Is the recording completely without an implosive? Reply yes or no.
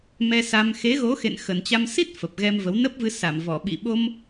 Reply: no